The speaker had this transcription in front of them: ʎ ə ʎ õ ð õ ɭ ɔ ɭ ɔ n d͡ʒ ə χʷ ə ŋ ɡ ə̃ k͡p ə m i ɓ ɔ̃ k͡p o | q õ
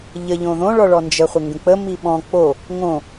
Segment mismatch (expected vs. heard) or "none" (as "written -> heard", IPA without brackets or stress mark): q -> ŋ